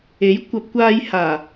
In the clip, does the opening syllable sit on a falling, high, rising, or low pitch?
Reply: rising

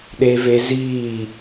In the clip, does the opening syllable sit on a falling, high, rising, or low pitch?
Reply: low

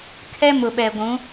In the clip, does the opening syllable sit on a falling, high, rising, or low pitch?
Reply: high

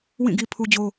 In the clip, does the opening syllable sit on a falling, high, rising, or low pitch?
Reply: falling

